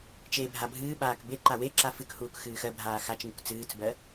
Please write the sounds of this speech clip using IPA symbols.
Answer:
t͡ʃ eː bʱ a bʱ ɨː ɓ aː k b e ǃ a w e ǁ a f ɨ k h uː k x ɨː x ɜ bʱ aː x a t͡ʃ ŋ u k t͡s ɨː t͡s b ɜ

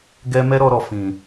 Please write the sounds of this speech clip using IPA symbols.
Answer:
ɡ ɛ˦ m ɛ˦ ɾ ɔ˧ ɾ ɔ˨ f ĩ˨

